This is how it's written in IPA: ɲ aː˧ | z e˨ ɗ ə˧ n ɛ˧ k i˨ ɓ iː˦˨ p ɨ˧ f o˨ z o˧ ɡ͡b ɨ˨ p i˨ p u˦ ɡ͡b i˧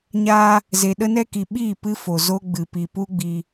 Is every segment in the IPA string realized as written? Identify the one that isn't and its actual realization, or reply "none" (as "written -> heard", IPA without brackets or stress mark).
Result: none